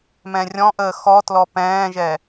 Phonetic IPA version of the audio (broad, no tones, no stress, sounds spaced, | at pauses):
m ɛ̃ rʲ ɔ̃ ʔ əː x ɔ t l ɔ p ɛ̃ː ʒ ɛ